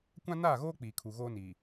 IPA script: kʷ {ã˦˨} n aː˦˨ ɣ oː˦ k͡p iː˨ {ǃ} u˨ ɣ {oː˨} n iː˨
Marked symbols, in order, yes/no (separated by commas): no, no, no